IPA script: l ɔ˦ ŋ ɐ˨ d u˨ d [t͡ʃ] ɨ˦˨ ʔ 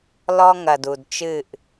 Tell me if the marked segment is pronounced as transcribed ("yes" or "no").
yes